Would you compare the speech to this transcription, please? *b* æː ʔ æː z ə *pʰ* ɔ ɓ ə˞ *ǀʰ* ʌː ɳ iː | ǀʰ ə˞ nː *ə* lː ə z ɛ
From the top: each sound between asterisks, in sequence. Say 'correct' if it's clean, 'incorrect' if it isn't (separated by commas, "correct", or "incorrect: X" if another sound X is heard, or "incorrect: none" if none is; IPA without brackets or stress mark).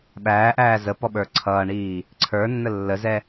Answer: incorrect: ɓ, incorrect: p, correct, correct